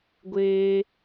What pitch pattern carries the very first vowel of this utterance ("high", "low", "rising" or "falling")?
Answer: high